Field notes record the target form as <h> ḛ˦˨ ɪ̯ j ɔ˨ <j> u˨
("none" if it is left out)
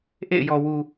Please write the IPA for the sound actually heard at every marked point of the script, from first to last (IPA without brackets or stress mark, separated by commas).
ʔ, w